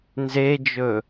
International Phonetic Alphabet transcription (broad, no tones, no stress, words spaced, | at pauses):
nzed͡ʒɵ